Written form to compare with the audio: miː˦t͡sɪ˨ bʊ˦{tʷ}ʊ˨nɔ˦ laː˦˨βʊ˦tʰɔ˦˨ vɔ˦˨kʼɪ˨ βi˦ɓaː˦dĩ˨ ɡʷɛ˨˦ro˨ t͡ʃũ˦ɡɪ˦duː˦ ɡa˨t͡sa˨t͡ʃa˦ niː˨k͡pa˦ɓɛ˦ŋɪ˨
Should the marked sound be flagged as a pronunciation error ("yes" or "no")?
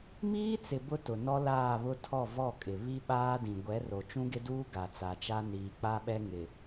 yes